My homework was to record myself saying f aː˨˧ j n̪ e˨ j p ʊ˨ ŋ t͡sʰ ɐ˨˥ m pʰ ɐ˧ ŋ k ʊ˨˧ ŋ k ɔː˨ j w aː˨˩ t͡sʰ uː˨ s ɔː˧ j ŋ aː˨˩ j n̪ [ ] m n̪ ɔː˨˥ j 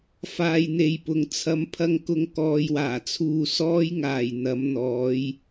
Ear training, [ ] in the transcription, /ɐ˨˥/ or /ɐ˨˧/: ɐ˨˥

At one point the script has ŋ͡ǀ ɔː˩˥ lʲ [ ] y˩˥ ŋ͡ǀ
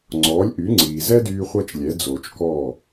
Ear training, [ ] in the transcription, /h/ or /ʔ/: ʔ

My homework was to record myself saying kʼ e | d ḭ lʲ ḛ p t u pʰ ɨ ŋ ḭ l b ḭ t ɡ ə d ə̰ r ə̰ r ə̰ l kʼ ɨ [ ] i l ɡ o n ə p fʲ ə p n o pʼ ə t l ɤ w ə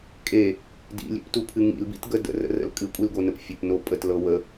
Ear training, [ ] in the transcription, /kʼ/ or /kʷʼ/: kʷʼ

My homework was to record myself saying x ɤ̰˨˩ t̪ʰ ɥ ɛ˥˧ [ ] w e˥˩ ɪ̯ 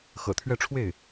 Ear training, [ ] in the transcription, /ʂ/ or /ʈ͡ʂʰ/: ʈ͡ʂʰ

